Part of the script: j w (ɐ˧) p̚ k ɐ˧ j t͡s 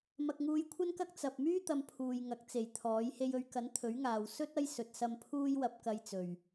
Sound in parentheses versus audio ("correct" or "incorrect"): correct